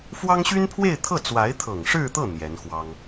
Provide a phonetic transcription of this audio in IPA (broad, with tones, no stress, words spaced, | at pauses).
fwɑ˥ŋɕy˥npʰwe˥˧ɪ̯t̪ʰɤ˥˩ t͡swa˧˥ɪ̯t̪ʰɤ˨˩ŋʂɻ̩˥˧t̪ɤ˥˩ n̪jɛ˧˥nxwɑ˥ŋ